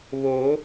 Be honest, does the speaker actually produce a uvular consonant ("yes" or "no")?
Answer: no